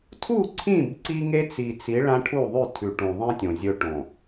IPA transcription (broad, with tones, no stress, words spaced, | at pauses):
tʰu˦˨ǀʰĩ˦˨b ǀi˦ŋe˦t͡si˨t͡si˨˦ ɭã˦ʈʰu˦˨ ðˤʉ˦˨tʰʉ˨ʈũ˨ðˤĩ˦ tʲõ˨zʲɵ˦ʈõ˨